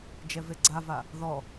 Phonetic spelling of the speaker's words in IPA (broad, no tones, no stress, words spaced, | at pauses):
d͡ʒɛveɡ͡ǀava | ðɔ